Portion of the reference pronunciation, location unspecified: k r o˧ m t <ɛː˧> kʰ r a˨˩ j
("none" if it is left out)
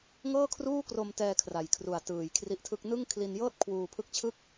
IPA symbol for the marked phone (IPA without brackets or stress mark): ɛː˧